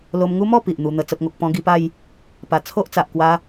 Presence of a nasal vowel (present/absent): present